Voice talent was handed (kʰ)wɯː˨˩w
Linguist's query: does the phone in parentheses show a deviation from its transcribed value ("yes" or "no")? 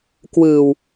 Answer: yes